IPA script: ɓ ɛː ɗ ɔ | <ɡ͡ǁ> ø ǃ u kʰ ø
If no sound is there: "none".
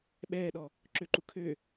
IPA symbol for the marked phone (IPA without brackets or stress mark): ǁ